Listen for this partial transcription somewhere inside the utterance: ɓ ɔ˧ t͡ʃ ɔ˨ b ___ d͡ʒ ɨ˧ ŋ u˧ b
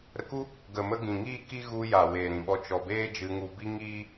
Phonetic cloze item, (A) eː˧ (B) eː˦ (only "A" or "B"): B